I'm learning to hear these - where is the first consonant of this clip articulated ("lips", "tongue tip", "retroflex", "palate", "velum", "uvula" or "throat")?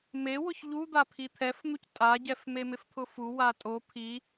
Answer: lips